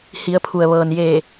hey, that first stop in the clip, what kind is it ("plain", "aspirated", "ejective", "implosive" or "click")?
aspirated